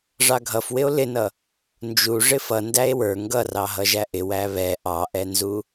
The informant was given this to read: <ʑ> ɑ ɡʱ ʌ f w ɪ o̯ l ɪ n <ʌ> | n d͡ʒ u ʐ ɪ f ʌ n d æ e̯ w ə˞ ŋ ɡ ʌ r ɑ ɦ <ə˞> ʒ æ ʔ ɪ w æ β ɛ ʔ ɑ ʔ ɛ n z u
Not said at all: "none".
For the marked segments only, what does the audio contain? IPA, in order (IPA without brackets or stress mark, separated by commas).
ʐ, ʌ, ʌ